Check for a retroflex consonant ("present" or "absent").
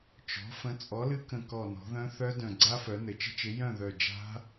absent